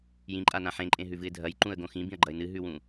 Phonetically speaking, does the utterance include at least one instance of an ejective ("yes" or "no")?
yes